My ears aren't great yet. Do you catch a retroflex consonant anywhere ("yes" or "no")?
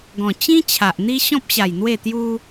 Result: no